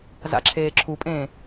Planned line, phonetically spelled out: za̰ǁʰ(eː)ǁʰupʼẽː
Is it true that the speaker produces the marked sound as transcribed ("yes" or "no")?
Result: yes